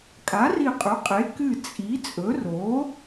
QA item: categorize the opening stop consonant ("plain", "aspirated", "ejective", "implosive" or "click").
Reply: ejective